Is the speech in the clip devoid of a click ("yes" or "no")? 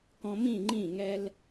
no